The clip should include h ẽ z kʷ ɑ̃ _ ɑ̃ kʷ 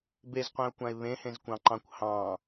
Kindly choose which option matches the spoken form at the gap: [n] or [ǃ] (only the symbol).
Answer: ǃ